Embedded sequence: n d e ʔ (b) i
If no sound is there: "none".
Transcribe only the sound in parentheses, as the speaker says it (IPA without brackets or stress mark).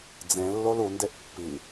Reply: pː